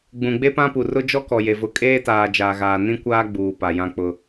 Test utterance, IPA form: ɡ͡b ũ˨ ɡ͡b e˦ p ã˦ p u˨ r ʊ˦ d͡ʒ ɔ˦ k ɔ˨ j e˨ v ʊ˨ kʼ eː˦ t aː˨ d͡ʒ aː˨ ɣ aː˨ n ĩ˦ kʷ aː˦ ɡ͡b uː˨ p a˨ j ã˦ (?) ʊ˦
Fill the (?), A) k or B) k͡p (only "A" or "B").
B